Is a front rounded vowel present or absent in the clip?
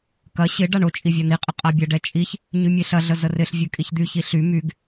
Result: present